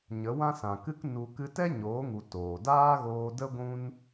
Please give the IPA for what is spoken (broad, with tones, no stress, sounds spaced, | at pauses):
ɲ ə˨˦ w ã˦ s ã˨ k ɨ˦ k n u˧ k ɨ˧ t ɛ˦ ɲ oː˨˦ ŋ u˨ t oː˨ d aː˦ ɣ oː˧ d ə˦ ɡʷ ũ˦ n